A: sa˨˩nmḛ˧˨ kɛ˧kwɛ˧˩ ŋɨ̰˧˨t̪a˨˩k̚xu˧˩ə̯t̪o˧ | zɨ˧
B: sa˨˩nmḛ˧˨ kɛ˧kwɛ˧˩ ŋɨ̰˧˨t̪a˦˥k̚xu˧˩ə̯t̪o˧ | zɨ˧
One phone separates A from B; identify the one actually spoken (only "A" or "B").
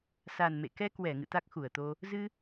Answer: B